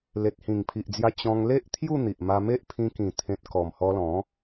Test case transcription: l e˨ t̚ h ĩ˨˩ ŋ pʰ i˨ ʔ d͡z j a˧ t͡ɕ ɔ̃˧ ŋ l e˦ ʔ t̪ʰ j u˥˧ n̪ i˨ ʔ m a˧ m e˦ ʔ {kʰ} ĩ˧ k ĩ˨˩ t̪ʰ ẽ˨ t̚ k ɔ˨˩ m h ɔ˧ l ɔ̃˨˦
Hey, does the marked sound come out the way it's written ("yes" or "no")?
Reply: no